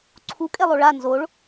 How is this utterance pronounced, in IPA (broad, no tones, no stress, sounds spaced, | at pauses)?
ǀʰ u kʼ e lˠ o ɭ a n z o ɭ